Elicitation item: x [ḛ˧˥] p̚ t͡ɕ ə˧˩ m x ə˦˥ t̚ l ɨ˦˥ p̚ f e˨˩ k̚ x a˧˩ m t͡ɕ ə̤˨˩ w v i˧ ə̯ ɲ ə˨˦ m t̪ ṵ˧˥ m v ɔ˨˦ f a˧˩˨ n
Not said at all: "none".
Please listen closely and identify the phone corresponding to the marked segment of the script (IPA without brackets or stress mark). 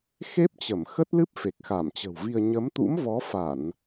e˦˥